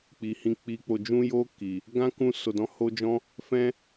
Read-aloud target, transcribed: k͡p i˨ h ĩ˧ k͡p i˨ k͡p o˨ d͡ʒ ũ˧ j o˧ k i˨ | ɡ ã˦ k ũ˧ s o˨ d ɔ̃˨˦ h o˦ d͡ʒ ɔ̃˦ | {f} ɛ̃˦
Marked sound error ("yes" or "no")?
no